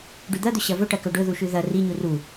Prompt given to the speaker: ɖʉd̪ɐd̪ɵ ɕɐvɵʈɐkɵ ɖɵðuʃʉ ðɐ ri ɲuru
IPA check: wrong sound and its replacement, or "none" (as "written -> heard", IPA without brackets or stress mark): none